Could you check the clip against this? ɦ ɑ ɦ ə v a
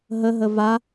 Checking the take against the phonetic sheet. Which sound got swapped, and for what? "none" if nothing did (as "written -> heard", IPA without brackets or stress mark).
ɑ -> ə